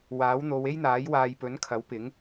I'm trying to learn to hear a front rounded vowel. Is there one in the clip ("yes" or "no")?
no